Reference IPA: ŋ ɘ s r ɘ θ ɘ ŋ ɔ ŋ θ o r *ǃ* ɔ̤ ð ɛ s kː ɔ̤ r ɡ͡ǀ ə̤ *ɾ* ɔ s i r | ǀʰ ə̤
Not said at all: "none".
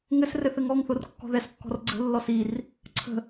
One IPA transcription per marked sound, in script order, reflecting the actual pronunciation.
kː, lː

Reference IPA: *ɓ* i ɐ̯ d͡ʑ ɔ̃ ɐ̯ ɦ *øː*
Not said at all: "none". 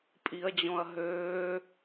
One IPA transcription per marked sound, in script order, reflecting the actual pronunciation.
pʼ, øː

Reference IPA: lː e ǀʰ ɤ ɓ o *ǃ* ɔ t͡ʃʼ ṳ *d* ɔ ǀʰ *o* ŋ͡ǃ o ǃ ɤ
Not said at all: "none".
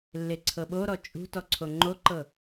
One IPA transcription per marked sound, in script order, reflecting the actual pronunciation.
ɾ, t, o

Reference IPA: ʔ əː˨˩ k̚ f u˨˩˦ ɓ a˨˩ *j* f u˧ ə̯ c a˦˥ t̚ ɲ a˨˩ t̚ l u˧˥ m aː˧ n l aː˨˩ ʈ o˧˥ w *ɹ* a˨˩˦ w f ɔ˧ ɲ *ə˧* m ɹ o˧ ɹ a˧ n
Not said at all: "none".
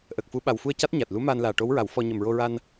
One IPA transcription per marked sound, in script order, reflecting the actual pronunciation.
w, ɹ, ə˨˩

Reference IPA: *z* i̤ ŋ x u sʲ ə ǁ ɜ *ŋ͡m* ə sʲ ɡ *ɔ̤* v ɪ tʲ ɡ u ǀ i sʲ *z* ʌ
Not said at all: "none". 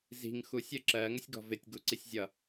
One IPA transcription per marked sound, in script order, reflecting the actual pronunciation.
z, ŋ, ɔ̤, zʲ

